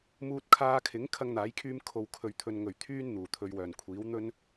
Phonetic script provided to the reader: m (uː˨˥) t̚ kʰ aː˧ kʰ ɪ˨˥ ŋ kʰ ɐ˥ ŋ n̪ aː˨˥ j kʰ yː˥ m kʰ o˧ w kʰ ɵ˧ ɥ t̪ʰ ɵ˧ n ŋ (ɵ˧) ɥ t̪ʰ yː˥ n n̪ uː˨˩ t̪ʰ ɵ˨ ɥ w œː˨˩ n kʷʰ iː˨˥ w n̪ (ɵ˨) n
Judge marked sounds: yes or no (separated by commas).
no, no, no